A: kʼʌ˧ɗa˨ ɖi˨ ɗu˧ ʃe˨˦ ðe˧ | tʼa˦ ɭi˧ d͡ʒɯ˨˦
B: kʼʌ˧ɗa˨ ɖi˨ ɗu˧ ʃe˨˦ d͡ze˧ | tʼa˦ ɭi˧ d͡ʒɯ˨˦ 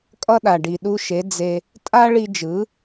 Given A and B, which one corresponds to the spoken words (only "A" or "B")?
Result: B